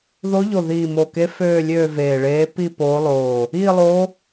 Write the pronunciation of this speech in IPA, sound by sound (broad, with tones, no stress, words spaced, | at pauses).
ðo˧˥ʎo˧˩ ðiː˧˩mo˧˩ke˧˥ føː˥˧lʲøː˥˧ veː˧˩ɭeː˧˥ pi˥˧poː˧˥lˠoː˧˩ | iː˥˧lˠo˧˥